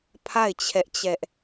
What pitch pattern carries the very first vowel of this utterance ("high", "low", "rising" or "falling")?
falling